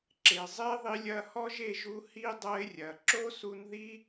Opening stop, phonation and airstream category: click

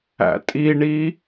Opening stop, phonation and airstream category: ejective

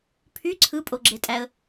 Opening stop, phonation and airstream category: aspirated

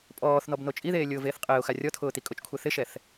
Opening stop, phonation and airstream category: ejective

